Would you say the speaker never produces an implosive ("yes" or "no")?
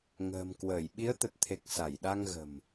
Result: no